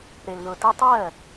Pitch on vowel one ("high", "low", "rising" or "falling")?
low